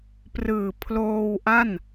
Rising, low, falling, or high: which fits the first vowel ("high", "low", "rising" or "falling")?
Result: low